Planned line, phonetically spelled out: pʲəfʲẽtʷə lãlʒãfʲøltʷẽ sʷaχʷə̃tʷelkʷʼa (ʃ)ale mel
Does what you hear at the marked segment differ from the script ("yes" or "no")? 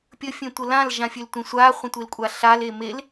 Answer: yes